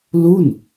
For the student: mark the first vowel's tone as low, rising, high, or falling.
falling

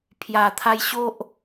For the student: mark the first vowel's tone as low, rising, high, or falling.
low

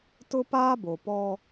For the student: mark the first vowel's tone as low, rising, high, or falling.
high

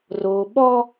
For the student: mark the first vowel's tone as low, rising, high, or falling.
low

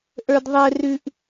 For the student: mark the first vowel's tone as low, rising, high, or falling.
low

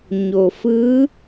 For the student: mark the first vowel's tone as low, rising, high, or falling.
low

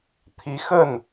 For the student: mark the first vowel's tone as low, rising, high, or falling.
rising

